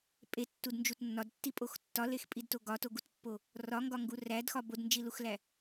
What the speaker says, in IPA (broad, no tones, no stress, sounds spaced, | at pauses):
pʼ e tː u d n d͡ʒ u t nː ɒ d tː i pʼ o x tː ɒ l e x pʼ i d t o ɡ ɒ t o ɡ u t pː o | r ɒ ŋ ɡ ɒ ŋ ɡ u r æ d x ɒ b o d n d͡ʒ i l u x l æ